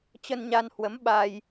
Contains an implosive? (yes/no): yes